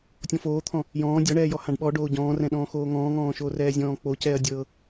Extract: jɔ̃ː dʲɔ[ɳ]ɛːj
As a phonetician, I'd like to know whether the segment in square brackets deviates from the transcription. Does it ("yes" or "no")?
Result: no